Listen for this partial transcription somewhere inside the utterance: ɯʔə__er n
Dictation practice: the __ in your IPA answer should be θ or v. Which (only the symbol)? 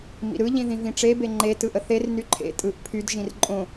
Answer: θ